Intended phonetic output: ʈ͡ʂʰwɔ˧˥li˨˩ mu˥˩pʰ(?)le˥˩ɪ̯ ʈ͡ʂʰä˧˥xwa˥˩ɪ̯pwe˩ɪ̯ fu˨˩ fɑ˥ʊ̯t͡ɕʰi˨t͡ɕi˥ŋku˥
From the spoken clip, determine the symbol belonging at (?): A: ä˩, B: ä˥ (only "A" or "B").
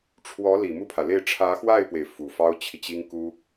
A